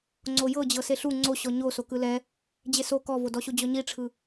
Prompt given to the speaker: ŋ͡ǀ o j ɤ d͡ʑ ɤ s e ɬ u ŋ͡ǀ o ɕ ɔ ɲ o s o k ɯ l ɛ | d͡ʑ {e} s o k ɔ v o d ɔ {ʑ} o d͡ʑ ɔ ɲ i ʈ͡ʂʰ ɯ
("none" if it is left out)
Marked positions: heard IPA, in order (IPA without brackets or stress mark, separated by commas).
e, ɕ